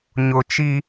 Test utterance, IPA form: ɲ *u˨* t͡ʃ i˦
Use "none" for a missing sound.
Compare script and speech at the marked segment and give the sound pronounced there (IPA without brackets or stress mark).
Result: ʊ˨